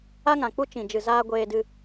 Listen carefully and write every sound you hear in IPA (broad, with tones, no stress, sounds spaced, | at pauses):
a˦ ŋ ã˨ k͡p u˦ t͡ʃ ĩ˨ d͡ʒ ɨ˨ z aː˧ ɡʷ eː˧ d ɨ˧